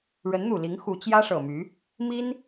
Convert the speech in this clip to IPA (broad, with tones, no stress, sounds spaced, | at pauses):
ɻ ə˧˥ n n̪ u˨˩ l i˧˥ ŋ x u˧˥ t͡ɕ j ä˥ ʂ ɤ˨˩ m y˧˥ | m i˥ n